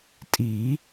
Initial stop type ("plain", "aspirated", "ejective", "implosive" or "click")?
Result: ejective